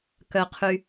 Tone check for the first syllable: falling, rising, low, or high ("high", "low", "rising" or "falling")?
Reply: low